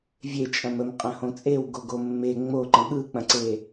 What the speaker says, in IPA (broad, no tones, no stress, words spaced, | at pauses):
vʲe t͡ʃʼɐ̃məm qʼɐ̃hõt͡sʼew ɡoɡomːe ŋ͡moǃə̃ ɠɯk͡pɐ̃ǀe